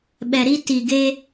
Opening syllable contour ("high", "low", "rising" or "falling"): low